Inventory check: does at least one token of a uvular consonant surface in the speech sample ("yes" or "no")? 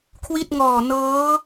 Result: no